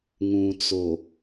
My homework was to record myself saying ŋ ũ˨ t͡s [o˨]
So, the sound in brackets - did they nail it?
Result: yes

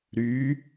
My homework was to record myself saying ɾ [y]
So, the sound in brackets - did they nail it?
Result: yes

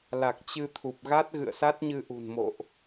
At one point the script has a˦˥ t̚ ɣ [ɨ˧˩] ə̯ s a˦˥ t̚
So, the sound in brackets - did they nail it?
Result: no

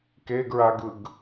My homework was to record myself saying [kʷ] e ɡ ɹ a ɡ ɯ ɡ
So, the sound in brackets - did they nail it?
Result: no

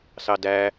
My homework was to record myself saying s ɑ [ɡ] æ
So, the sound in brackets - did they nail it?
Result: no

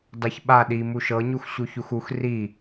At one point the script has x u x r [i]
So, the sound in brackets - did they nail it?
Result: yes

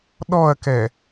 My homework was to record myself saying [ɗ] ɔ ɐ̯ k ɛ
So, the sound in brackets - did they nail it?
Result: yes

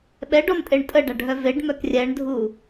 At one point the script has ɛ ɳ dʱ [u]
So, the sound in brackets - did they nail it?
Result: yes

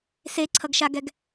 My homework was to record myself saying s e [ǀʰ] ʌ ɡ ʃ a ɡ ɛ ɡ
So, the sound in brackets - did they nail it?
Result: yes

